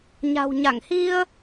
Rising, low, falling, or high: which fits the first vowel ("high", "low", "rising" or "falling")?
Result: low